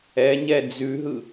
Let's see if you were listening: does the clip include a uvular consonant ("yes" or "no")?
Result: no